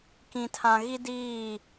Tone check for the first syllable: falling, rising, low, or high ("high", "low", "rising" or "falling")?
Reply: low